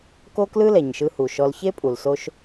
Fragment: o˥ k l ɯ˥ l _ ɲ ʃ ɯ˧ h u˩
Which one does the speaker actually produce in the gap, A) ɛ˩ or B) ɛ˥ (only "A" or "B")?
A